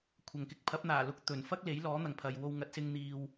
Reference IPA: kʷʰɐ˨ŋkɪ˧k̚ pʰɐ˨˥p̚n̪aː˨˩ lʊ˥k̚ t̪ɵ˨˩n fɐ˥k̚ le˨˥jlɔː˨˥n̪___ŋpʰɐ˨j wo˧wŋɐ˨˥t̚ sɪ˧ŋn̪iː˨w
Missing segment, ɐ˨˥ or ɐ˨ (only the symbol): ɐ˨